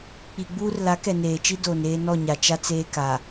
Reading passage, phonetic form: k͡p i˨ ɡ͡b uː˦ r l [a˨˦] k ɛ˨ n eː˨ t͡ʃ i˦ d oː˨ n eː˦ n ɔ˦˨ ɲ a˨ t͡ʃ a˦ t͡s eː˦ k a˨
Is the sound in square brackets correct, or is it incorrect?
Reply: correct